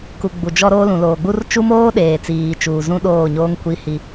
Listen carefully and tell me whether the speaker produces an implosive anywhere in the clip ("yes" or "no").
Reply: yes